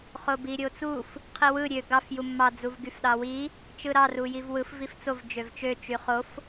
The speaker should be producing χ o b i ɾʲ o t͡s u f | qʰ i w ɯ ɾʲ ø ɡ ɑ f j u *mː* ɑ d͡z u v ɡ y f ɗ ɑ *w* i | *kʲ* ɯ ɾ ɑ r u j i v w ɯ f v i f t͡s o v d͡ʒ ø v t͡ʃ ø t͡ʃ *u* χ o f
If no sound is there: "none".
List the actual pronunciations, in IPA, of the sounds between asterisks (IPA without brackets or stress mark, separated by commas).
mː, w, t͡ʃ, y